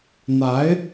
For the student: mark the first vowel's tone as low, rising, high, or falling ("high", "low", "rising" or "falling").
rising